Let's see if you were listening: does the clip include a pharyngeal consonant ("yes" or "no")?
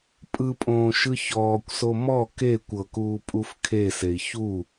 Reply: no